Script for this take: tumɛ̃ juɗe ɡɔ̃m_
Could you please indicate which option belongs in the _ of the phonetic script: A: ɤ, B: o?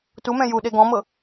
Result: A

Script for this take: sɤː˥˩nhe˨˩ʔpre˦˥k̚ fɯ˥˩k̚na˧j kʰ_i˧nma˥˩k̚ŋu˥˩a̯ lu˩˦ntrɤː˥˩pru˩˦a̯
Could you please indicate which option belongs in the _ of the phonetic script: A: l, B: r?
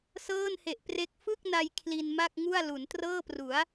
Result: A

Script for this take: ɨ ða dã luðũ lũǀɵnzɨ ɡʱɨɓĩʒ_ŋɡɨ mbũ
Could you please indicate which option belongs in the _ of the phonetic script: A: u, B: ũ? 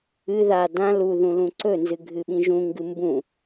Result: B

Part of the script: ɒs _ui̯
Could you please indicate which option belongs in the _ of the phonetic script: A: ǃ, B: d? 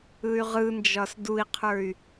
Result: B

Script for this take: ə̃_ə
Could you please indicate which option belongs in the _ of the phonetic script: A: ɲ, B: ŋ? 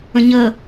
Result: A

